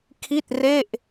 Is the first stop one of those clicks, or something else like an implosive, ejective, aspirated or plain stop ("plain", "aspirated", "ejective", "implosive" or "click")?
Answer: aspirated